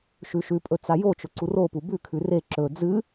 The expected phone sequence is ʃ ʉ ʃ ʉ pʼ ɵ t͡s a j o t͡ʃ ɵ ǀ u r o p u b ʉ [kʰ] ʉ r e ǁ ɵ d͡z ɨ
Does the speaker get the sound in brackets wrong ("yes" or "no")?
no